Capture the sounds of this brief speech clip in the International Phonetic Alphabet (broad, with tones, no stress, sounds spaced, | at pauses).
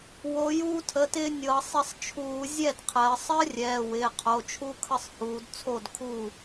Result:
w o˩˧ j uː˧ tʰ ə˩˧˩ t ɪː˧ nʲ ɤ˩˧ sˤ ɪ˧ sˤ t͡ʃʰ uː˧˩˧ zʲ ɛ˥˩ d qʰ ɜ˩˧ sˤ ɜ˦˥ rʲ ɛː˩˧˩ w ɪː˩˧˩ qʰ o˩˧˩ t͡ʃʰ u˦˥ kʰ ə˥˩ sˤ h uː˩˧ d t͡sʰ o˥˩ d kʰ uː˥˩